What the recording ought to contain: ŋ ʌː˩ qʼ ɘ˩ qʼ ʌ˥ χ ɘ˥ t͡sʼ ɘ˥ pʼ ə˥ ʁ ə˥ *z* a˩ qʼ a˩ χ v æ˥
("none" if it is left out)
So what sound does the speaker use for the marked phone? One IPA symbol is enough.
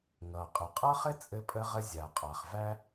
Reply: zʲ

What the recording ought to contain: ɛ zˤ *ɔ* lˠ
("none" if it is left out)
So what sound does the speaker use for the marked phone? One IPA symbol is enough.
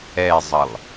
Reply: ə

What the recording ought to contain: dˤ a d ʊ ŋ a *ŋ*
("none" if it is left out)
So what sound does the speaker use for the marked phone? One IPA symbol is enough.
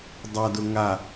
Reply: none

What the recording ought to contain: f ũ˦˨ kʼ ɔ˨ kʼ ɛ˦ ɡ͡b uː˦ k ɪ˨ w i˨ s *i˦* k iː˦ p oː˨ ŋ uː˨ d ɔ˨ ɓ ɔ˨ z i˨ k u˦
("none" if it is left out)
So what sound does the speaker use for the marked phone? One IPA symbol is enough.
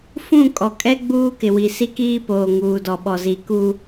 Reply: i˦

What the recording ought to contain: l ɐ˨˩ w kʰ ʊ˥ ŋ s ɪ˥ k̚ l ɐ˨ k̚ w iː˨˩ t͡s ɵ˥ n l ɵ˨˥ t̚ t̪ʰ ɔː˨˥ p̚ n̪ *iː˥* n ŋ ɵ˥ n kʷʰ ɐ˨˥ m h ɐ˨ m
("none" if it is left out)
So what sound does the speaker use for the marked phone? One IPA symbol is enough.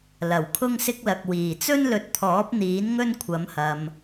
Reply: iː˨˥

